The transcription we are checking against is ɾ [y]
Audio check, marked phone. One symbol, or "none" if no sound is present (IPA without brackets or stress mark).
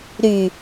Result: y